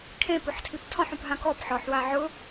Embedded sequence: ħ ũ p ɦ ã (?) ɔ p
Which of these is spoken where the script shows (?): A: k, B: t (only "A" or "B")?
A